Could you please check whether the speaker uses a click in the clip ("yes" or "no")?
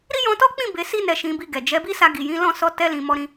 no